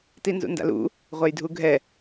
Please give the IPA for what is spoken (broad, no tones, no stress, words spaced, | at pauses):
tinzṵnda̰lṵ | ʁʷɛjdʱuɡʱɛ